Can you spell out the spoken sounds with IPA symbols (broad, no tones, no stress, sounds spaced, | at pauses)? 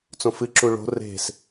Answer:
t͡s õ f ɨ ǁ u ɭ o̤ r e̤ s